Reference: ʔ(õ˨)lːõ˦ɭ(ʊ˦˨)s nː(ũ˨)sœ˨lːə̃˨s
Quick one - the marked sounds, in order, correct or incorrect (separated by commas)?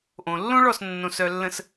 correct, incorrect, incorrect